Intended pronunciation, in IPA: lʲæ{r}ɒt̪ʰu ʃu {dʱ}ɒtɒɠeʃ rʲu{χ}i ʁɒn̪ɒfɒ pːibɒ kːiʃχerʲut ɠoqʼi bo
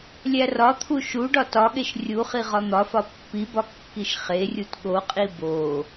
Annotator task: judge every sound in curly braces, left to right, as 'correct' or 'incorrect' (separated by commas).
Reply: correct, incorrect, correct